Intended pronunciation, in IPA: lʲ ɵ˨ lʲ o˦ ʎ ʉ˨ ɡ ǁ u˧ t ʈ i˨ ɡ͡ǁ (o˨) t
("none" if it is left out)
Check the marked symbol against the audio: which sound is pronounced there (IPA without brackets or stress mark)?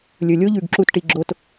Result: o˧